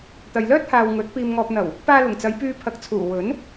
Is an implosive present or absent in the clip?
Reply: absent